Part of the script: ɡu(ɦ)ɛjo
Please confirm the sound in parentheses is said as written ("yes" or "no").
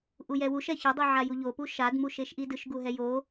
yes